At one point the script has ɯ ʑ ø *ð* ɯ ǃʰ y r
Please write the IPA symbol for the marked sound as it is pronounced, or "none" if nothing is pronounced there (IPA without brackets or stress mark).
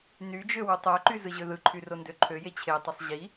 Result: ð